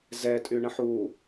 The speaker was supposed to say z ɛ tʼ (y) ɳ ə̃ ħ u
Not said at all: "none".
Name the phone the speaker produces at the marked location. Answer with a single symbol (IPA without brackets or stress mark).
y